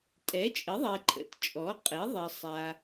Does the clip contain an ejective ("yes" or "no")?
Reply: yes